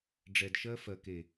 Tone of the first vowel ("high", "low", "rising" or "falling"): low